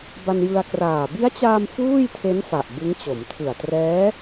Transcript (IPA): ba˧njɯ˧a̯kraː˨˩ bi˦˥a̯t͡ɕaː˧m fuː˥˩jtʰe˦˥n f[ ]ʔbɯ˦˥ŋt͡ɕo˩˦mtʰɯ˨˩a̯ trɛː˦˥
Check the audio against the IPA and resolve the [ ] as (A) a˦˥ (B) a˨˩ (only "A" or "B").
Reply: B